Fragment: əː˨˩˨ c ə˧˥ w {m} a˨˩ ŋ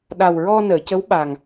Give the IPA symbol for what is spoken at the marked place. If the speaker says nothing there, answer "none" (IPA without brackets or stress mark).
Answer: ɓ